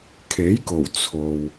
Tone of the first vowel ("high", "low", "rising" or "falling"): rising